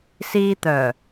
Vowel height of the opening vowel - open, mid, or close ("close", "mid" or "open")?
close